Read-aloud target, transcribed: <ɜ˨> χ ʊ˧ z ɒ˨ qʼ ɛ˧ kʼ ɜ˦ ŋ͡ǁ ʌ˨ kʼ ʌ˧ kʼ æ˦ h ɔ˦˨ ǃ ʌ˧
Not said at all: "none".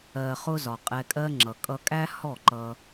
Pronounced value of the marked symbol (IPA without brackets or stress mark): ɜ˨